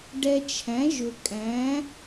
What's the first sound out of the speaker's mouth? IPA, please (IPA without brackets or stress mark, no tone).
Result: ɖ